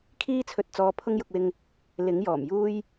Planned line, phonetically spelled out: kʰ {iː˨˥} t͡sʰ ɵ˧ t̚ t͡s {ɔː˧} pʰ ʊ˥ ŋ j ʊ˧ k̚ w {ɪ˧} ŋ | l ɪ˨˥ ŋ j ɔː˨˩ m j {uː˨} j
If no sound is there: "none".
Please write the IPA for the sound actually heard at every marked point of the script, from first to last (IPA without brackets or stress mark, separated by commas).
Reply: iː˥, ɔː˧, ɪ˧, uː˥